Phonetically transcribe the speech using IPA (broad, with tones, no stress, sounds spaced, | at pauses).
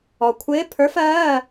ɔ˩ kʷʰ ɪː˧˥ pʰ ə˞˧˥ f ɜː˧˥˧